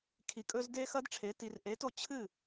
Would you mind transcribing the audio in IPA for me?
kʰ i˩ kʼ ɵ˧ z d e˦˥ x ɐ˦˥ d ʈ͡ʂʰ e˨˥ t i˧ r ʔ e˨˥ t o˥˩ t͡ɕʰ ɨ˥˩

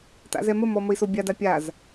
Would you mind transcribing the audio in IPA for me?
t a̰ z ɛ m ə m ɔ m ə i̯ s o bʲ a d a pʲ a z

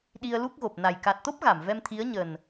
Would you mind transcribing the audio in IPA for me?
ɗ i˧ ə̯ l u˦˥ k̚ ɣ o˨˩ p̚ n a˨˩ j k a˨˩ t̚ t̪ o˦˥ p̚ ɣ a˧˩ m v ɛ˧ m t̪ʰ i˨˦ ə̯ ɲ ə˨˩ n

